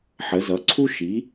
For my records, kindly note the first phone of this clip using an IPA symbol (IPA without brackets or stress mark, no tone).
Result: ħ